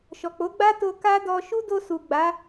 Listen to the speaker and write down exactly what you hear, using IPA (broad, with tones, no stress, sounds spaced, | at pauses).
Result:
ʃ ɔ˨ k͡p o˨˦ ɡ͡b a˦ t o˧ k a˦ d ɔ˧ ʃ u˦ d o˧ s u˨ ɡ͡b a˨˦